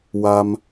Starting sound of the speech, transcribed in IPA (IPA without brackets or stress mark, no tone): w